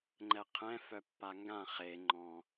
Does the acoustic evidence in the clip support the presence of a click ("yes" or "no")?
yes